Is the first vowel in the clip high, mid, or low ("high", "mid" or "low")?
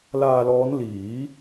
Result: low